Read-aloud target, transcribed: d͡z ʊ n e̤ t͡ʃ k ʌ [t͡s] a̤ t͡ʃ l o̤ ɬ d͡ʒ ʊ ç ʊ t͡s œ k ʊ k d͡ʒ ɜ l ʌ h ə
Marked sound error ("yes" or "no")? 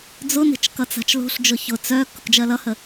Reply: no